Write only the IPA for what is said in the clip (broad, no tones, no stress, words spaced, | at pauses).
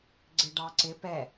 ɡ͡ǀɪɖɑ ǀɪ pɛ